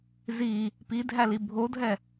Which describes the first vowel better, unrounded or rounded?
unrounded